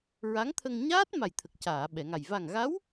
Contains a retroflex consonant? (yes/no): no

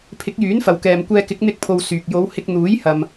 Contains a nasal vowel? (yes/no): no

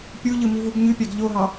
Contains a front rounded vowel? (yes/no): yes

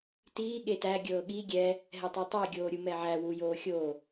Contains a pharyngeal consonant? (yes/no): yes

